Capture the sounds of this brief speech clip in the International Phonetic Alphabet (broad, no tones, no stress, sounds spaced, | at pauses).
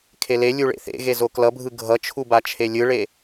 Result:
kʰ e l e lʲ u ɭ ḛ θ ḛ ɣ e z o k l ʌ bʱ ɯ ɡʱ ʌ t͡ʃʰ u b a t͡ʃʰ e lʲ ɯ ɭ e